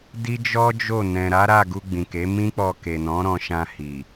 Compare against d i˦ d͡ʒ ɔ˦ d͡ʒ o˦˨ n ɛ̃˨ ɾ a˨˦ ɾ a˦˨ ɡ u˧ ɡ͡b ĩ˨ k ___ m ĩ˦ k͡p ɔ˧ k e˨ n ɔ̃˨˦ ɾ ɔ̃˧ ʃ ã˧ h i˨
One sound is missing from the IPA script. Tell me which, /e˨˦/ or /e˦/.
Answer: e˨˦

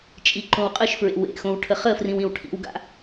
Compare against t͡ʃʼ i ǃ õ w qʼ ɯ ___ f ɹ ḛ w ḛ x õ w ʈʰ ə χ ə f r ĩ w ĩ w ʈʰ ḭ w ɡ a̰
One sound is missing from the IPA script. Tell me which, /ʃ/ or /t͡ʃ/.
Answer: ʃ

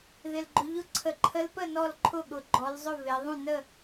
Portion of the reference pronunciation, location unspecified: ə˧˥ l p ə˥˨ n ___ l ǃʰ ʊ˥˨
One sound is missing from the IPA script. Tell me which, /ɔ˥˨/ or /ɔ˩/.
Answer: ɔ˥˨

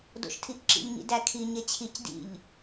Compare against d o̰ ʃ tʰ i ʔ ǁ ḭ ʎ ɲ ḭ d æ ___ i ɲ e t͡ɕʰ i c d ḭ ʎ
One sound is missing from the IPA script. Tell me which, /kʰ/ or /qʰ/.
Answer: kʰ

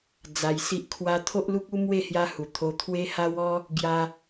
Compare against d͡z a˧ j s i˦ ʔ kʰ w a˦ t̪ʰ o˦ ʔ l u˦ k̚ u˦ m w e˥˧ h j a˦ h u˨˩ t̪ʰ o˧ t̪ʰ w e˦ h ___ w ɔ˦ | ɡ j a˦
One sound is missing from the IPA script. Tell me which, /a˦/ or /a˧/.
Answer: a˦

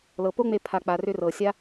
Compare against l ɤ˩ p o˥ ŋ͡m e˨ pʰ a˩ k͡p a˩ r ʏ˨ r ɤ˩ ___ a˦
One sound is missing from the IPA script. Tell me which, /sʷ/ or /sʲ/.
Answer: sʲ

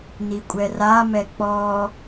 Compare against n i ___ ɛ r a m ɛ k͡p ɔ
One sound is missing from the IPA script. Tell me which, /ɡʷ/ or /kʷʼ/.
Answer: kʷʼ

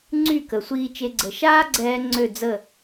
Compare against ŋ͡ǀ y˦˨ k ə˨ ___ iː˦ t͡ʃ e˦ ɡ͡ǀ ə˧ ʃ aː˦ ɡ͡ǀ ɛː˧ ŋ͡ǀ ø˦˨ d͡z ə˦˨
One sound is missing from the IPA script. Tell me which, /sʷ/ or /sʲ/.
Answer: sʷ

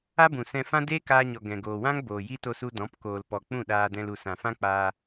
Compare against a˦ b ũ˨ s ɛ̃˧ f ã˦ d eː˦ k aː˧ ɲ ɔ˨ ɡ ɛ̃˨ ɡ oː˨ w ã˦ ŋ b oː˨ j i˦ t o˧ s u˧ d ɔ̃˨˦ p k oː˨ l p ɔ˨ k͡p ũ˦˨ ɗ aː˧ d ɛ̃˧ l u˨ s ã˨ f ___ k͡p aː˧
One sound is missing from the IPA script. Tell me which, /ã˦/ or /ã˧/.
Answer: ã˦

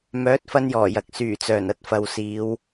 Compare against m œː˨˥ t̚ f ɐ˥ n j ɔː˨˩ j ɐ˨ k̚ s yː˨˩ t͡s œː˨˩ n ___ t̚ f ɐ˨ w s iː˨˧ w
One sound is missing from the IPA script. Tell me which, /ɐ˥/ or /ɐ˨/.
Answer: ɐ˥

